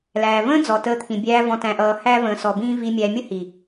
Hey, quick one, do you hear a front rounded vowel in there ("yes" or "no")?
no